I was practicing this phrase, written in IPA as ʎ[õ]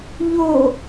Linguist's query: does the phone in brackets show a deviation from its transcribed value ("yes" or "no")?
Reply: yes